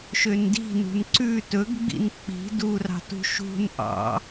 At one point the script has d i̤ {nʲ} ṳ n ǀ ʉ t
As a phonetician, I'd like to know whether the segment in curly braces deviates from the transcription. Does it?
yes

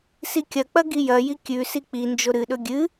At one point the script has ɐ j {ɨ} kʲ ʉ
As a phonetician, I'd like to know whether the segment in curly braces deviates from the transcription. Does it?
yes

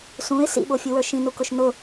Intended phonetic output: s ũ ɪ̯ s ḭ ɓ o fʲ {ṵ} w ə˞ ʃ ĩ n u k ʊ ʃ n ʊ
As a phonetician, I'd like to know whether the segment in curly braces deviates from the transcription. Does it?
yes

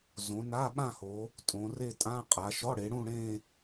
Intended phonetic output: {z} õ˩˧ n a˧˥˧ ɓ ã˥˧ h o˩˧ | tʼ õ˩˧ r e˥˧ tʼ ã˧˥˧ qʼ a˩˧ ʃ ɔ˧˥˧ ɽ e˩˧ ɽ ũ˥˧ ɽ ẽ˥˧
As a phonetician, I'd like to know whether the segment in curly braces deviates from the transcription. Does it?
no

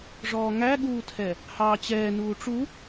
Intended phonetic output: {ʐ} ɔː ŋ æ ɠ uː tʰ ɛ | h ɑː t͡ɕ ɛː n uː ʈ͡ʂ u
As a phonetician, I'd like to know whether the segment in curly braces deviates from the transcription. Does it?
no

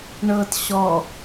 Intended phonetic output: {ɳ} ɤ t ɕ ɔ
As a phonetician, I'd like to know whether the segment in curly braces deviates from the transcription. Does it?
no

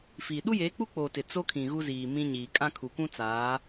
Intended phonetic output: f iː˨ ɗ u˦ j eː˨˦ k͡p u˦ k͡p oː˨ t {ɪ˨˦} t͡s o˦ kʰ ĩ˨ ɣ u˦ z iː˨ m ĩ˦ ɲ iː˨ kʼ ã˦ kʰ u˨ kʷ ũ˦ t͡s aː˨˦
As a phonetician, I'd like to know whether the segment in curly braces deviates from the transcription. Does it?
yes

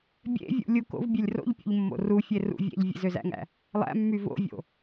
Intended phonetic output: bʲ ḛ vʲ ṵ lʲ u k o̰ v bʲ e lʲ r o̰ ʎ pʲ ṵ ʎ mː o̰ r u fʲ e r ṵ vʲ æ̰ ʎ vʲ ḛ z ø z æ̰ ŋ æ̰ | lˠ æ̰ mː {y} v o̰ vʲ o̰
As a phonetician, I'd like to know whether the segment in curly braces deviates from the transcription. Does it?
no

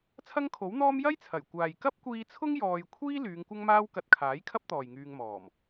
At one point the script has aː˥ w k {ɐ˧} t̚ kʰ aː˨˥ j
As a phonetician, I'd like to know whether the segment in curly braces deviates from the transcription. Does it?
no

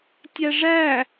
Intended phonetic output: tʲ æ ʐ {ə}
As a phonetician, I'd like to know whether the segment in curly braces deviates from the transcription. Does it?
yes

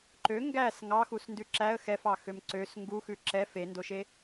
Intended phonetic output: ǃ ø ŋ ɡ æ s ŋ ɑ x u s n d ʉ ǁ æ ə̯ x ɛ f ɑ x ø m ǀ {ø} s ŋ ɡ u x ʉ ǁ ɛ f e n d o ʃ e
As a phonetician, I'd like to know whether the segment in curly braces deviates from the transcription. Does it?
no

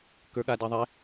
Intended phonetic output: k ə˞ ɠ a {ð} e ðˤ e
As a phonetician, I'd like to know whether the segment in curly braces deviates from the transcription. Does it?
yes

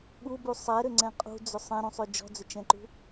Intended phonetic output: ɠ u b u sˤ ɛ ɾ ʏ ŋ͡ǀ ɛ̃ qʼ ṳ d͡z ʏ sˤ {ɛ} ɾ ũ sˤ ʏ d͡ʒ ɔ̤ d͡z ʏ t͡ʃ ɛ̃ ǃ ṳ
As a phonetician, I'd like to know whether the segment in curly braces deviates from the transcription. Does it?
yes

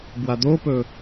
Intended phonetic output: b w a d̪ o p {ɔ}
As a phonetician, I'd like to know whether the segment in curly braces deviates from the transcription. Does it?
yes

